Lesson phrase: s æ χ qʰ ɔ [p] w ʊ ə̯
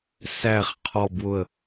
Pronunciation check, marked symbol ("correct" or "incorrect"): incorrect